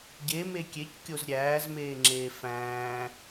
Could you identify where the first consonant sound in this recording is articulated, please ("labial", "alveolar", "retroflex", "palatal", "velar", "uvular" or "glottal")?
palatal